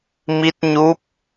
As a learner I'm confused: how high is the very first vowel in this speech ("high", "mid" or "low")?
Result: high